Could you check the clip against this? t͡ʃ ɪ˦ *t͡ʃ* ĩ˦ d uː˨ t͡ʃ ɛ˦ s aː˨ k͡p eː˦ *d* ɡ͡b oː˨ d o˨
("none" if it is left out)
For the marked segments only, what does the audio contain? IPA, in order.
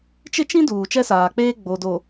t͡ʃ, none

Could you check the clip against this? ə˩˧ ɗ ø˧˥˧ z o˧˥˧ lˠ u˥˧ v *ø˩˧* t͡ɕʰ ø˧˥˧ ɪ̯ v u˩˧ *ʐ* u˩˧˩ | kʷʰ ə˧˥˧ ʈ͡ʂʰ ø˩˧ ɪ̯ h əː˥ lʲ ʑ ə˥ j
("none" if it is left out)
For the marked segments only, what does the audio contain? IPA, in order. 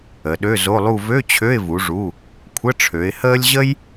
ø˧˥˧, ʐ

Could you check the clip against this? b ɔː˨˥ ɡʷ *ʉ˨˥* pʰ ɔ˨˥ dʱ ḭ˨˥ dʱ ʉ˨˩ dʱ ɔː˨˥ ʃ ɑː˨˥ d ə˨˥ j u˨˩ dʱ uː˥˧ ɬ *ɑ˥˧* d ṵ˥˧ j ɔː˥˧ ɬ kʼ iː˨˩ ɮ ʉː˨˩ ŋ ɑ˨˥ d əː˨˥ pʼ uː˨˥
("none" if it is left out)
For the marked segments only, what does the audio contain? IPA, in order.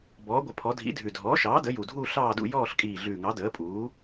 ə˨˥, ɑː˥˧

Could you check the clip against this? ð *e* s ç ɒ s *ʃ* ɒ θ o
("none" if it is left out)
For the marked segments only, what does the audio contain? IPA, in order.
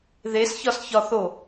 e, ç

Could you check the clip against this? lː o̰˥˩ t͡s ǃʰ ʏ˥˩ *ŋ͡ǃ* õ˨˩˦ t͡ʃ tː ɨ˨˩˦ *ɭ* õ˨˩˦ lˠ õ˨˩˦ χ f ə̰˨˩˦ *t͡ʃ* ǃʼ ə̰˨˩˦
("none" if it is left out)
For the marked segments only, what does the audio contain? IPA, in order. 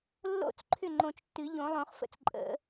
ŋ͡ǃ, ʎ, t͡s

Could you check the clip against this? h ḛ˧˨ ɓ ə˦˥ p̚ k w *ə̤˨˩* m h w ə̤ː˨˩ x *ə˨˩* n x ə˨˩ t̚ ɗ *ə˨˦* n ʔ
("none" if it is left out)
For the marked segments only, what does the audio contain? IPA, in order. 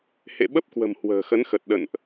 ə̤˨˩, ə˨˦, ə̰˧˨

